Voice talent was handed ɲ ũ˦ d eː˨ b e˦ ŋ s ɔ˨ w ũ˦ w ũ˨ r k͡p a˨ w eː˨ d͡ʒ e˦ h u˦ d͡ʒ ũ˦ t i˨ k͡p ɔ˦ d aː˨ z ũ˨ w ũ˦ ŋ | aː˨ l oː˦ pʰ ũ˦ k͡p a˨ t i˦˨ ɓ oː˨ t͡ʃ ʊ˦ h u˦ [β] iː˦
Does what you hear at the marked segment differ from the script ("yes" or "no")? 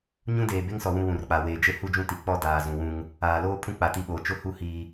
yes